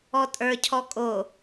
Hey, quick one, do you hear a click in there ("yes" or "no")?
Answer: no